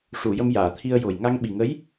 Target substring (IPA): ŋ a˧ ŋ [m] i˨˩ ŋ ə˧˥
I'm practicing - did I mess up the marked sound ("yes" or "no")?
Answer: yes